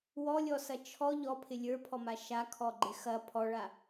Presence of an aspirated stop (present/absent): present